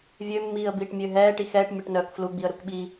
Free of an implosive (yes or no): no